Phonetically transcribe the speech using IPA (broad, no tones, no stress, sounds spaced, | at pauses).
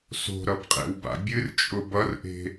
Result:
s o̤ ɾ ʌ b qʼ ḛ w b a̰ bʲ ɨ r t͡ʃʼ ʊ b ʌ r ʔ e̤